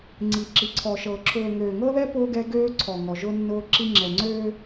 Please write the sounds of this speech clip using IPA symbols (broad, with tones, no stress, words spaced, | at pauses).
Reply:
ŋ͡ǀi˨ǁi˨ǀʰɔ˨ʃɤ˨ ǁʰʊː˨ ŋøː˨ŋɤ˦ðɛ˦ pʊ˦ ɡɛ˦ɡøː˦ǀʰɔ˨ŋɔ˨ ʒʊ˦nːʊː˦ǁi˦ ŋ͡ǁɛ˨ŋ͡ǀøː˦